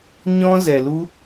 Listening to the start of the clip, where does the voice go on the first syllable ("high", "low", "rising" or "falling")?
high